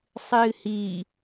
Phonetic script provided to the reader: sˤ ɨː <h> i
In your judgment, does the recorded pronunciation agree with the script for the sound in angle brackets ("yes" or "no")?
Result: yes